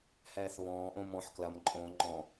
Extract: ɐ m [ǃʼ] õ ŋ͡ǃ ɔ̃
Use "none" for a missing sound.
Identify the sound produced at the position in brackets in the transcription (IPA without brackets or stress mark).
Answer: ǃʼ